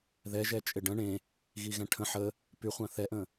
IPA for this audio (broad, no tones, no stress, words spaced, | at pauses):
ðɛʒɛ t͡ʃʼɪɖə̃ ɳẽ | ɣiɣɛ̃ʈʰə̃ ħə | pyχʷã θɛʔə̃